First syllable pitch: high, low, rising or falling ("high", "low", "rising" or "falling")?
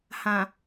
low